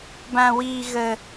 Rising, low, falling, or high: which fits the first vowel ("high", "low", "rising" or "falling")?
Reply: high